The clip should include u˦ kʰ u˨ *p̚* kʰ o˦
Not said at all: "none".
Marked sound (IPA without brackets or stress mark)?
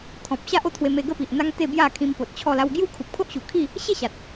p̚